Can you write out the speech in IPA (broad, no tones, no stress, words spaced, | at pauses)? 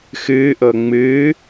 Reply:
xɨʔɤ ŋ͡mɨː